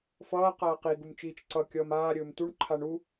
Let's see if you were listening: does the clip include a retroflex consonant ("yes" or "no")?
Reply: yes